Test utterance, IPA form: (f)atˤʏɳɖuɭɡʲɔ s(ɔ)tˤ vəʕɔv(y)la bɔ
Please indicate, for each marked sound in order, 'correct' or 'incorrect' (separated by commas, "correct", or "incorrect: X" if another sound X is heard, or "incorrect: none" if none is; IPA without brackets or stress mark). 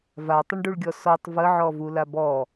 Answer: incorrect: v, correct, incorrect: u